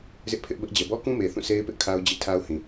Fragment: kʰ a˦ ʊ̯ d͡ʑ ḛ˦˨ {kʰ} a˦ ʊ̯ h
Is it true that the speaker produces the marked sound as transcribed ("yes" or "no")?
no